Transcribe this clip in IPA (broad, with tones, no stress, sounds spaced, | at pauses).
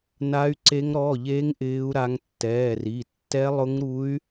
n a˦˥ y̯ ǀ e˦˥ ŋ ɾ ɔ˧˥˧ ʎ e˦˥ ŋ ʔ ɪː˦˥ u̯ ɾ a˦˥ ŋ tː ɛː˧˥˧ r i˧˥˧ tː ɛ˦˥ lˠ ʊ˦˥ ŋ ɾ u˦˥ y̯